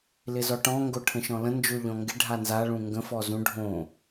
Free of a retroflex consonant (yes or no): no